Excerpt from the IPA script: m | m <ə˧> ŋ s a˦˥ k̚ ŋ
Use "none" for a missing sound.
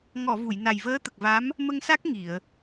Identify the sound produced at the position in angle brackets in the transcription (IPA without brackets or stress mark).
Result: ə˧